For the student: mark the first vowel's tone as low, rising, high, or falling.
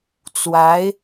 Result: rising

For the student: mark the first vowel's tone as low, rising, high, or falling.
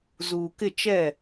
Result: low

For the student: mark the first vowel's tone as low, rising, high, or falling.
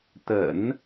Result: low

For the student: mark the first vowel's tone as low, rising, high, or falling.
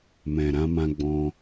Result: low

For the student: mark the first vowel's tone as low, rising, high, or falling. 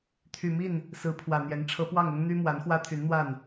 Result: low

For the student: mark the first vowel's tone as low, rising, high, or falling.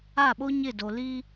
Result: falling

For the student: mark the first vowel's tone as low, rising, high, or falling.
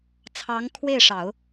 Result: rising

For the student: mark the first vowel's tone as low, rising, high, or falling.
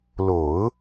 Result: low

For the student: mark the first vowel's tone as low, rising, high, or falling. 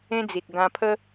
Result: high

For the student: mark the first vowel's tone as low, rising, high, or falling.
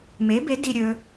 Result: rising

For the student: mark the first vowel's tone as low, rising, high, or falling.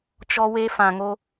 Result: high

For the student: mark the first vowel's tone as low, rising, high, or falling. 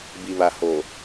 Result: low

